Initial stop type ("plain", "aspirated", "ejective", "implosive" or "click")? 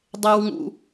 plain